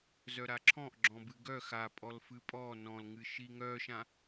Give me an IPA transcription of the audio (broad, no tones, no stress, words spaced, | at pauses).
zœɾaǁʰɔ̃ʔ ɡ͡ǁɔ̃bɨɡœ xapʼɔl fɨpʼɔ nɔ̃lŋɨ ʃiŋœʃã